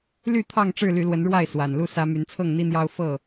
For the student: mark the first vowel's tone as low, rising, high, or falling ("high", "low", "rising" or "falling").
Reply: falling